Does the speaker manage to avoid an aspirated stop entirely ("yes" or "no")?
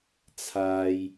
no